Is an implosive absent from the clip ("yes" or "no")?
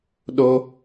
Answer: no